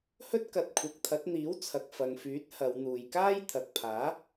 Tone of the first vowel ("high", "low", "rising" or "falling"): high